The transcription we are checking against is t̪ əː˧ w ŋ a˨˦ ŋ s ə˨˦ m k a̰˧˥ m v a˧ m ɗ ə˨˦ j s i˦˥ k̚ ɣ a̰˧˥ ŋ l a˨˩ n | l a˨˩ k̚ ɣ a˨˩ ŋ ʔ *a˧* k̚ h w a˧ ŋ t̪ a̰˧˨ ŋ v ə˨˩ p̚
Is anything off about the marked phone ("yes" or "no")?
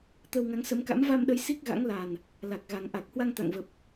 yes